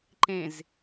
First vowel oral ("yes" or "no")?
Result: no